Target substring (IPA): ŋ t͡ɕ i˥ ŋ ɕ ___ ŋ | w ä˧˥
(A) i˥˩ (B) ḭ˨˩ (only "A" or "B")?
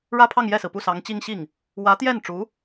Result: A